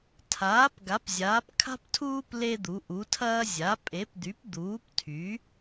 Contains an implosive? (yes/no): no